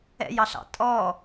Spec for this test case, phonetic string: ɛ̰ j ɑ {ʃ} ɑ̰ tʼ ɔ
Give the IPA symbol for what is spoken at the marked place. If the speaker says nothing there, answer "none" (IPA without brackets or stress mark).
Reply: ɬ